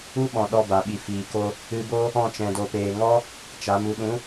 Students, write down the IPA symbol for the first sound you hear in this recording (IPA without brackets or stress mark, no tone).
u